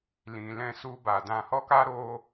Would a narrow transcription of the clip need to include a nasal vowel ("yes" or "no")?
yes